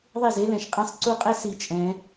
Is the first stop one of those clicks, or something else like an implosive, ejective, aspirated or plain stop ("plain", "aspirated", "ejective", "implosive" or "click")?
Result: ejective